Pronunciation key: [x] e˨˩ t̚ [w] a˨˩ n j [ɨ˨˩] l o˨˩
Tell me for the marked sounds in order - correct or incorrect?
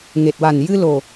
incorrect: ŋ, correct, incorrect: ɨ˧

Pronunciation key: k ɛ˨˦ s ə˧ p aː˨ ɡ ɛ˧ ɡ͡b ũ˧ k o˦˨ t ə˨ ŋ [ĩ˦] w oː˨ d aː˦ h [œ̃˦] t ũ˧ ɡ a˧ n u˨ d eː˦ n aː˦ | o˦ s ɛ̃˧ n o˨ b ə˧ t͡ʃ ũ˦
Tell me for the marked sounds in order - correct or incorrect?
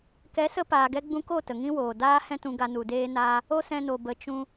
correct, incorrect: ɛ̃˦

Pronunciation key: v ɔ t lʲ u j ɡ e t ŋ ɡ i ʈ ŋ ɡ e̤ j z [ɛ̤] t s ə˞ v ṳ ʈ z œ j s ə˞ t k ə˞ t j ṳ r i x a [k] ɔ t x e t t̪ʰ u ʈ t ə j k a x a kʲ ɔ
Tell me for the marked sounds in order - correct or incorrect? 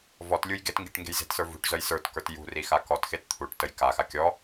incorrect: e̤, correct

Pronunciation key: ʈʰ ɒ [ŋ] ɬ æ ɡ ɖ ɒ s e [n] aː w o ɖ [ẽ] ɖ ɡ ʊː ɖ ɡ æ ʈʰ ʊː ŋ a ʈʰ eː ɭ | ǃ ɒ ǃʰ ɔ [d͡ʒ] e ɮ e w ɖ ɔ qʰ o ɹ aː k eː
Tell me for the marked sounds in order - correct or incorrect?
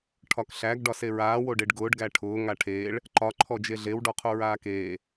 incorrect: k, incorrect: ɹ, incorrect: e, correct

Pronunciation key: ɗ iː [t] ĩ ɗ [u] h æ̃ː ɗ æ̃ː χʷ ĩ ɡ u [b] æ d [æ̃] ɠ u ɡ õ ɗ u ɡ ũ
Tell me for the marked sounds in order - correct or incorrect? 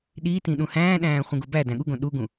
correct, incorrect: ũ, correct, correct

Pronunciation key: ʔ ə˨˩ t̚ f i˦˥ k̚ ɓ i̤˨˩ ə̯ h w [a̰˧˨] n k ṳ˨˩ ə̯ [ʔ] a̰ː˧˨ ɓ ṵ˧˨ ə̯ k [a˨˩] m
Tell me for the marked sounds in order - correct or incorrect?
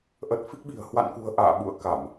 correct, correct, incorrect: a˧˩˨

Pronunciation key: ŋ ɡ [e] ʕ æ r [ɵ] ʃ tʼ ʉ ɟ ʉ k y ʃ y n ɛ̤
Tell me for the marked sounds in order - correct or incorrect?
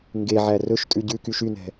correct, correct

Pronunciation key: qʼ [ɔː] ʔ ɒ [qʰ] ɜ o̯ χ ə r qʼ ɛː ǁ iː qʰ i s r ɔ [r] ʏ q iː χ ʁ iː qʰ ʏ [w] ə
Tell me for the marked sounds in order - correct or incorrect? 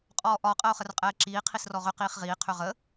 correct, incorrect: qʼ, incorrect: ʁ, incorrect: ʁ

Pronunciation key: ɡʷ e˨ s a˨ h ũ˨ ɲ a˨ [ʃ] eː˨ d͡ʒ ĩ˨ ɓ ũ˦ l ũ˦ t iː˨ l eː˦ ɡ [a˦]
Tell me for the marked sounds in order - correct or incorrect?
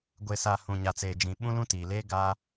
incorrect: t͡s, correct

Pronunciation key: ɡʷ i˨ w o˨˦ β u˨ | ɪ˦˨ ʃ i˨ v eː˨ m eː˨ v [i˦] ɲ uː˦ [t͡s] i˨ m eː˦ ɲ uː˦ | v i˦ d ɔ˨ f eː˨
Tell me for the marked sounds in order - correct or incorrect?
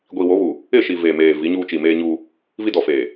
incorrect: i˨˦, incorrect: t͡ʃ

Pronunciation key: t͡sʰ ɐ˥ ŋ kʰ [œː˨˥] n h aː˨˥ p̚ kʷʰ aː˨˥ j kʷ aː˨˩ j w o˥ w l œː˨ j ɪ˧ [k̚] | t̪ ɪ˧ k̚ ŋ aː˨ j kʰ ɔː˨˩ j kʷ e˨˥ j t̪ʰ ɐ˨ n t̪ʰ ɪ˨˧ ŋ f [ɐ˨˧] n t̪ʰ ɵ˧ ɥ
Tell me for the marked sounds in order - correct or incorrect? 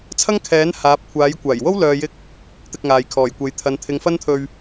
incorrect: ɛː˨˥, correct, incorrect: ɐ˥

